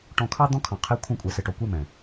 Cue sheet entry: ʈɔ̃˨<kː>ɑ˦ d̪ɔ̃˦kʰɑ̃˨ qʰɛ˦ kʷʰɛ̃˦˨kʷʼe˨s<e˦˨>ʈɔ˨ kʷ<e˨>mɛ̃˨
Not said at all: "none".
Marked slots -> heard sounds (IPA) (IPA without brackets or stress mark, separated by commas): kʰ, e˨, e˦